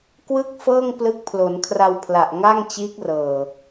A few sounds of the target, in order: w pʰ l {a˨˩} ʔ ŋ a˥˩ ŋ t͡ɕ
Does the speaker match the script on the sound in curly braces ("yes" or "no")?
yes